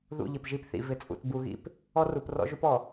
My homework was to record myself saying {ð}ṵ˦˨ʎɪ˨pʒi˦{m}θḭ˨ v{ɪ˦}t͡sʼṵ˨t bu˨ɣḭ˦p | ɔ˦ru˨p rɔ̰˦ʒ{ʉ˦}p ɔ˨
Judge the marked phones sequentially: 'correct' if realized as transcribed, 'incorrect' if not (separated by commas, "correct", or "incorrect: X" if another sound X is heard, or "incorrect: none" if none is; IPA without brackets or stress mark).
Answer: correct, incorrect: p, incorrect: ɪ˨, incorrect: u˦